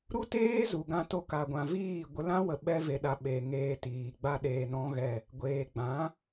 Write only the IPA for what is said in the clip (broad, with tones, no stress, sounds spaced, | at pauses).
ɾ u˦ t eː˦ z u˨ ɡ ã˧ t o˧ k a˨ ɡʷ ã˨ v iː˦˨ ɡʷ ə˧ l ã˦ w ə˨ ɓ ɛ˧ v e˨ ɗ a˨ ɓ e˨ ŋ eː˧ t iː˨ ɡ͡b a˦ ɗ eː˧ n ɔ̃˦ ɣ ɛ˦˨ | ɡʷ eː˨ ɡ͡b ã˨˦